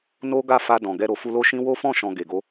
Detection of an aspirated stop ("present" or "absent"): absent